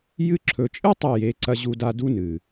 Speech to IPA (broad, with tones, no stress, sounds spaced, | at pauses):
j ɨ˧ ǁʰ ɵ˨ t͡ʃʼ ɨ˦ tˤ ɐ˦˨ j e˨˦ ǀ ɐ˧ ʑ u˧ d a˧ d u˦ n ɨ˨